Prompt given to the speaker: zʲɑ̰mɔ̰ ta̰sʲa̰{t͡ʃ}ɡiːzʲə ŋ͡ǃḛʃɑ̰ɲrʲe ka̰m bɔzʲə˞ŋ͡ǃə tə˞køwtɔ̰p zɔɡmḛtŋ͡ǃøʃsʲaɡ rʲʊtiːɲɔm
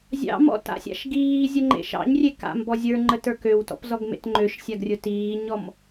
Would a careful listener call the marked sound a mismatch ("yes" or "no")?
yes